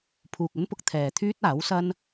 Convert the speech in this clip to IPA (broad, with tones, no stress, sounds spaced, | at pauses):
pʰ uː˨ k̚ ɵ˥ n p ʊ˧ k̚ t̪ʰ ɛː˨ t̪ʰ yː˥ t̚ aː˨˥ w s ɐ˥ n